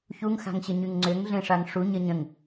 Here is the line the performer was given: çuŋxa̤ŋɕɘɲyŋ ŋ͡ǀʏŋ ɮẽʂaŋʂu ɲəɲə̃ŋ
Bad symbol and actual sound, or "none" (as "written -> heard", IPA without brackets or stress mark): none